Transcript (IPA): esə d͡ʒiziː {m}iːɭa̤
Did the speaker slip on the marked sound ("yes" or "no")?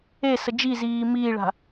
no